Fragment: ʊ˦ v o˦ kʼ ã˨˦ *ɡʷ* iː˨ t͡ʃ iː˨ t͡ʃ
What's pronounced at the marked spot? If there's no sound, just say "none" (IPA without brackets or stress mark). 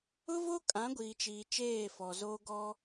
ɡʷ